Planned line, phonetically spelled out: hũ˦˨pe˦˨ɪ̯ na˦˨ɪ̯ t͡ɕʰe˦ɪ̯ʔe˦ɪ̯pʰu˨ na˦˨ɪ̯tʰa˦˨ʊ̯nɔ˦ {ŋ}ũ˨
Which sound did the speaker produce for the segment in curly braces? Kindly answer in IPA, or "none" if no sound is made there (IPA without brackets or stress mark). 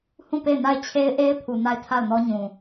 ɲ